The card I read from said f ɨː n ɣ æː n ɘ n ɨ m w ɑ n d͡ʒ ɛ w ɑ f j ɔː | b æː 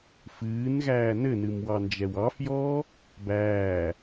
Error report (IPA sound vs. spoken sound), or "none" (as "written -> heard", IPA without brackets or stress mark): none